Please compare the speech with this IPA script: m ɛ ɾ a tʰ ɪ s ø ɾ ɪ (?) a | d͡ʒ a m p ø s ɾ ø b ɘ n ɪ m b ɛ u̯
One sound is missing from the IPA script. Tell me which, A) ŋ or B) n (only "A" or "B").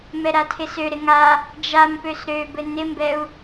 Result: A